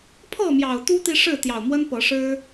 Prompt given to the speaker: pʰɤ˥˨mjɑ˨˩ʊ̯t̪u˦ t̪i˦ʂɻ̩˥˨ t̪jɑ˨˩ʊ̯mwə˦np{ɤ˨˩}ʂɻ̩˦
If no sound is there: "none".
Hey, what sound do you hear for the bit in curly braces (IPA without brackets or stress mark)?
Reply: ɤ˨˦